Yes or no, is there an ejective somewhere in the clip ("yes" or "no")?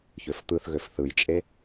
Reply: yes